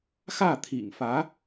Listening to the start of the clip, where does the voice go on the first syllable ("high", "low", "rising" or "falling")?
falling